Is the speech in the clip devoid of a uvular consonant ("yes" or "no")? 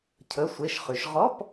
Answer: no